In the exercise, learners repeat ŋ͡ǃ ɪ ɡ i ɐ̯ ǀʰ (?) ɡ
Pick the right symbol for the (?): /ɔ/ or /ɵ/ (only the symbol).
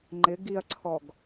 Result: ɔ